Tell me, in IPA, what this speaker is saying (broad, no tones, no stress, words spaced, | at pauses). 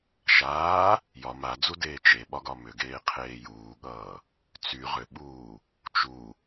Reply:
ʃaː | jɒ mad͡zudeː t͡ʃeɓɒɡɒ mʏɡeːqʰeː juːɠʌː | t͡sy ʁʏɓuː | t͡ʃu